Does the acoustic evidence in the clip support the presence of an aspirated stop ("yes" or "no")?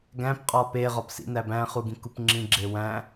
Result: no